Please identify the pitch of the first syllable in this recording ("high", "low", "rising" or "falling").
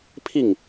falling